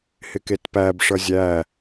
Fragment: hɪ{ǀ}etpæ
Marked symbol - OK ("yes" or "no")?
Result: no